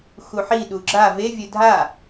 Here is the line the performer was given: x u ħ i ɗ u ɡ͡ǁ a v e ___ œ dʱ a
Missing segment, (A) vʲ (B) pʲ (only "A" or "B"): A